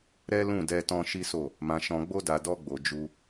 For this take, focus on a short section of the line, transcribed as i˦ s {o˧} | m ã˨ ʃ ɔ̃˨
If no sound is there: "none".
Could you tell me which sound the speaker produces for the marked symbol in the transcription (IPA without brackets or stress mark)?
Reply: o˦˨